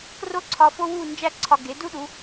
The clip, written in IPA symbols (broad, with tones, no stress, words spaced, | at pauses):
kro˥ǀʰɒ˧ fo˥wu˥˧ nd͡ʒæ˥ǀʰɒ˧ ɡe˩˧du˥ɗu˩˧